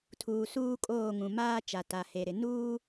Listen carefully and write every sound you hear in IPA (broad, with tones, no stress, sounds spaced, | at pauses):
tʰ uː˨ s uː˦ kʼ oː˦˨ ŋ ũ˨ m aː˦ t͡ʃ a˨ t a˨ h e˨ ɾ ɪ˨ n uː˦